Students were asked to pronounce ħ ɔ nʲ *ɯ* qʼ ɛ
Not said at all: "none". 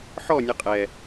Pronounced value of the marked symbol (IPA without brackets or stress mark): ɯ